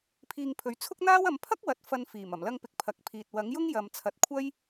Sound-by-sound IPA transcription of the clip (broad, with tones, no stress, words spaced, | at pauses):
pʰiː˧ŋpʰɵ˨˥ɥ t͡sʰʊ˥k̚n̪aː˥w ɐ˨˧mpʰɐ˥k̚wɐ˨t̚ fɐ˧nfiː˨˩m ɐ˨˩mlɐ˧ŋpɪ˨k̚ pʰɐ˨˥k̚pʰiː˨t̚ wɐ˨˥ŋjʊ˥ŋ jɐ˨mt͡sʰɐ˨˥t̚kʷʰɐ˥j